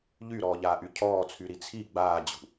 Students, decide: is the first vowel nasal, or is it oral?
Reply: oral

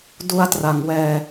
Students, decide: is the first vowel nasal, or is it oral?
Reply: oral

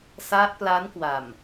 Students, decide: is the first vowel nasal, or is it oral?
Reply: oral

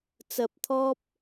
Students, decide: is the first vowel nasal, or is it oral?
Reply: oral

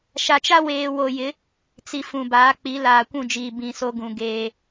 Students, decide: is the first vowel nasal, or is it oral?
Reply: oral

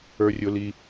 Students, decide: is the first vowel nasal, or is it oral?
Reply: oral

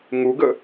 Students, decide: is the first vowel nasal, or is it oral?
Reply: oral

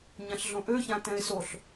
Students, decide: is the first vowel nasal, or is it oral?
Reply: nasal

